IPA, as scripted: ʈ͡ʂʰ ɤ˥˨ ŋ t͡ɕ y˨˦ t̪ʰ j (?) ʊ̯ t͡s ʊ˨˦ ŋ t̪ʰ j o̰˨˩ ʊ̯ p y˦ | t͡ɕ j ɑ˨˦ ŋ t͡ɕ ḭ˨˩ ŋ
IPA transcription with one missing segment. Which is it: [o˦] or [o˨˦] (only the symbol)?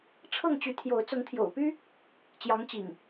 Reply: o˨˦